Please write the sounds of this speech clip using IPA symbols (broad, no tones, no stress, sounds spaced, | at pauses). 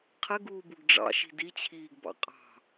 qʰ ɘ ɡ uː b u ɡ ɖ͡ʐ ɑ̰ ʃ i̤ d i t͡ɕʰ iː ɡ b ɑ̰ qʼ ɑ̤